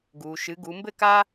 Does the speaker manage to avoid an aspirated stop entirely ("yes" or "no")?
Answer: yes